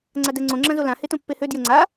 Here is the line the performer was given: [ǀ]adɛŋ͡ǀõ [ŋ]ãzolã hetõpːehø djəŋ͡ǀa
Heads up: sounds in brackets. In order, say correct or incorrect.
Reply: incorrect: ŋ͡ǀ, incorrect: ŋ͡ǁ

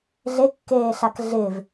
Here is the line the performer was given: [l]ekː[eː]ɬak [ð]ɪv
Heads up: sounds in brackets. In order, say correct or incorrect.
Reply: incorrect: ɮ, correct, incorrect: ɮ

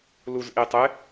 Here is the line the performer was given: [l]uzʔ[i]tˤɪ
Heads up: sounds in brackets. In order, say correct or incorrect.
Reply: correct, correct

